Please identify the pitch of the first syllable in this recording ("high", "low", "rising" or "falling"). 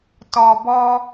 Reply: low